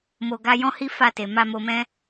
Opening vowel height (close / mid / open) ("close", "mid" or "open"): mid